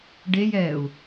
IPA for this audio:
ɖejɛːu̯

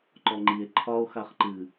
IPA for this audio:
ǃɔŋ͡ǃie̯ ǃʰɒo̯ xaχǃɨ

